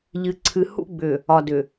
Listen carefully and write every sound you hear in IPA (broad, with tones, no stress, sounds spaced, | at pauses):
ʎ ɨ˨ ǀʰ ɨ˨ h ṵ˦ ɡ͡b ʏ˨ | ɒ˨ d ʏ˨